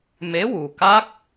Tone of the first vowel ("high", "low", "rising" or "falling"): rising